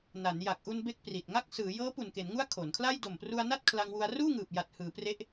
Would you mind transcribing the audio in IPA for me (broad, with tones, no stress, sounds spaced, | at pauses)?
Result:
n a˩˦ n j a˨˩ k̚ ʔ u˧ n b e˥˩ k̚ p r i˨˩ t̚ ŋ a˦˥ k̚ s ɯː˩˦ j ɤː˦˥ p u˨˩ n k e˩˦ n ŋ u˦˥ a̯ kʰ o˩˦ n kʰ l a˥˩ j d o˨˩ m p r u˧ a̯ n a˥˩ t̚ kʰ l a˧ ŋ w u˧ a̯ r uː˥˩ ŋ ɯː˨˩ p̚ j a˨˩ t̚ h ɯː˩˦ p r e˦˥ ʔ